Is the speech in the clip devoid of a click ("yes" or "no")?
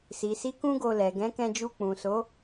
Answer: yes